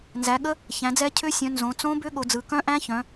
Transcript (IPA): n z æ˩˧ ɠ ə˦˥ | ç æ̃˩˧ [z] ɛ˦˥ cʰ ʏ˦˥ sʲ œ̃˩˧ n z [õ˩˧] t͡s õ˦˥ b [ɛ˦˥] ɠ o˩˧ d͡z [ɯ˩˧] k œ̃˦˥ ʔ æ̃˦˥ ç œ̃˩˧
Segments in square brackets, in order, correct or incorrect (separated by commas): incorrect, correct, incorrect, correct